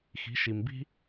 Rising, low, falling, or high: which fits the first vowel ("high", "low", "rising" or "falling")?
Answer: rising